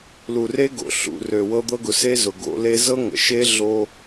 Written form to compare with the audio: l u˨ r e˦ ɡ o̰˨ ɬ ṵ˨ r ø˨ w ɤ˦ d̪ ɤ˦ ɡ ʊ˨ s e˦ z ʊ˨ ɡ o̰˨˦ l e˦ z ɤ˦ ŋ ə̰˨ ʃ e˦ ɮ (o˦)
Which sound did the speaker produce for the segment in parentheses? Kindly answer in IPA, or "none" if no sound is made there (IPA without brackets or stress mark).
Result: o˦